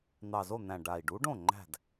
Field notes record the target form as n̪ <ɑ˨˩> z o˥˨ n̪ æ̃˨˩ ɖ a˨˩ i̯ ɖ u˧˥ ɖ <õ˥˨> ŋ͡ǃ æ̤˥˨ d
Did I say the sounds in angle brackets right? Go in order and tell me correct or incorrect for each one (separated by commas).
correct, correct